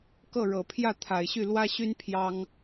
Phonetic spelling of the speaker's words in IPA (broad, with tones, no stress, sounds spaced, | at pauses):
k ɤ˥˩ ɻ ɤ˨˩ pʰ j ä˥˩ t̪ʰ a˨˩ ɪ̯ ɕ y˥˩ l w ä˥ ɕ y˥ n pʰ j ɑ˥ ŋ